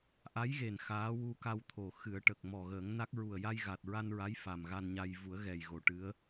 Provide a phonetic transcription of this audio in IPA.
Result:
ʔ a˧˥ j ɣ e˨˩ n x aː˧˥ w u˧ k a˧ w t̪ʰ o˨˩ x ɨ˨˩˦ ə̯ ʈ ə˨˩ k̚ m ɔ˨˩ ɣ əː˨˩˦ ŋ n a˦˥ k̚ ɹ u˨˩ ə̯ j a˧ j ɣ a˨˩ t̚ ɹ a˧ n ɹ a˧˥ j f a˨˩ m ɣ a˧ n ɲ a˧ j v u˨˩˦ ə̯ ɣ ɛ˨˩ j ɣ o˨˩˦ ʈ ɨ˧˥ ə̯

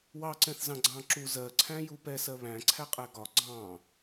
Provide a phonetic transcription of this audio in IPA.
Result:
w ɑ ǀ ɛ̃ θ z ɑ̃ ɡ͡ǀ ɑ̃ ǁ u z ɜ ǀʰ æ̃ j u p ɛ s ɜ β æ̃ ǀʰ æ qʼ æ ɡ ɒ ɡ͡ǀ ɑ̃

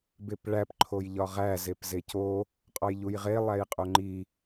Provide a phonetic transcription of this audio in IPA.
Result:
b e p ɭ æ p ǃʰ o j ʎ ɒ ʁ æ z e p z e c o | qʼ ɒ j ʎ u j ʁ e lˠ æ j qʼ o ŋ͡ǃ i

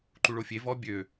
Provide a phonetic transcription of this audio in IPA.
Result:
ǃ u ɭ o fʲ e v ɔ bʲ ø

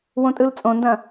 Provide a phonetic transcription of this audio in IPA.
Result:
w õ tʼ ɯ l t͡sʼ õ n d ɐ̃

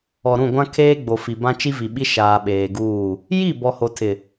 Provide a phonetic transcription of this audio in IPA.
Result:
ɔ˨ ɾ ũ˦˨ ɡʷ ã˦ kʰ eː˦ ɡ͡b o˨ f i˨ b ã˦ t͡ʃ i˦ v i˨ ɓ i˦ ʃ aː˨ ɓ eː˨ ɡ uː˦˨ | j i˦˨ b ɔ˨ h o˨ tʰ ɪ˨

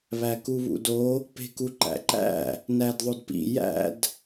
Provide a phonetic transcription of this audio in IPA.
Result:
β æ k u β ṵ d o | p e̤ k u ǃ æ̰ ǃ æ̰ | n æ d ðˤ o d p ḭ j æ̰ d

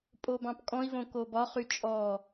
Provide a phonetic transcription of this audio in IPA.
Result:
pʼ o b ɑ̃ p kʼ ɔ̃ i̯ v õ k o b ɒ χ y t͡ʃʼ ɔ

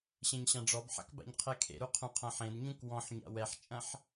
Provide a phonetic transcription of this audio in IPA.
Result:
ɕ ẽ ɲ ɕ ã ɖ͡ʐ ɔ b ħ a̰ k b a̰ ɲ qʰ ɛ kʰ ḛ ɾ u qʰ ũ qʰ ɐ̃ ħ ẽ d ɲ ũ k w ɔ̃ ħ ɲ a̰ w ɛ ħ t͡ʃʼ ɐ̃ ħ

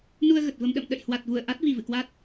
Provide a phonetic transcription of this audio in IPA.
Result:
n u˧ ə̯ ɣ ə˨˩ t̚ v ə˧ m ɗ ə̰˧˨ m ɗ ə̰˧˨ j h w a˨˩ t̚ v u˧˩ ə̯ ʔ a˦˥ t̚ v i˨˩ v ɨ̰˧˨ k w a˦˥ t̚

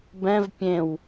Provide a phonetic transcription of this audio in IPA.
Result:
b ɛ̃ v pʲ ẽ w

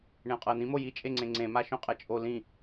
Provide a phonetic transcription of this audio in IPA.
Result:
ɳ ẽ o̯ qʼ ɤ e̯ n̪ ĩ m o j i t͡ʃʼ e ŋ͡ǀ ẽ ŋ͡ǀ ẽ m a ʃ õ qʼ ɛ t͡ʃʼ o l ĩ

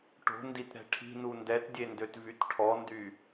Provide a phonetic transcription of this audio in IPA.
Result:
ʈ o̤ n d i t ɾ ɛ̤ ʈʰ i̤ n u n d ɛ t dʲ e n d ø t v y t ʈʰ ɔ n d y

